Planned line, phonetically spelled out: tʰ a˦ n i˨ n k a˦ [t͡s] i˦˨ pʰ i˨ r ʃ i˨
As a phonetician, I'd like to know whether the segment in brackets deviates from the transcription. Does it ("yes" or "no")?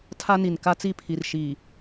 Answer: no